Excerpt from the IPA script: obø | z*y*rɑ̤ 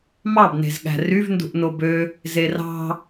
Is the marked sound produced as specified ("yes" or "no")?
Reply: no